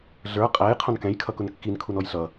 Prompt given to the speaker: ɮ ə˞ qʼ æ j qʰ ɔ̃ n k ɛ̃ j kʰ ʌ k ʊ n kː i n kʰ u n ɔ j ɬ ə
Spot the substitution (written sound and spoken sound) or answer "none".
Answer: ə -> ʌ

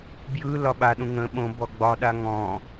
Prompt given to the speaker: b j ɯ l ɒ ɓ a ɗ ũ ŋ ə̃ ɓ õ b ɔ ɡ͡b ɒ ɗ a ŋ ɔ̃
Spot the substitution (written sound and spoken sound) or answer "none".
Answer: none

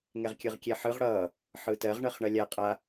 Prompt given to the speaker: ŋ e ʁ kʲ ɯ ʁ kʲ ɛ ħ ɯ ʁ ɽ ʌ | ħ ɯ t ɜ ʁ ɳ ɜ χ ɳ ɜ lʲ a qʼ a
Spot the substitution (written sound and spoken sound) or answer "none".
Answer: e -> ɛ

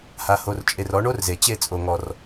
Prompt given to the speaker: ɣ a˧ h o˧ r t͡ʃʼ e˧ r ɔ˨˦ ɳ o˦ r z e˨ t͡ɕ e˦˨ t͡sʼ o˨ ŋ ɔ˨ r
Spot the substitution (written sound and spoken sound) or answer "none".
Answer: ɣ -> h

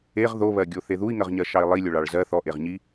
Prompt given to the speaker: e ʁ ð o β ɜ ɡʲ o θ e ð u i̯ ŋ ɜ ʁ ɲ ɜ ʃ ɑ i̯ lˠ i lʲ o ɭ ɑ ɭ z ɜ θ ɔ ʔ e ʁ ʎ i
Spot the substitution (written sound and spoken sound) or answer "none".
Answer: ʎ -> ɲ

